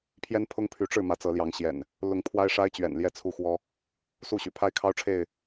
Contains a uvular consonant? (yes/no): no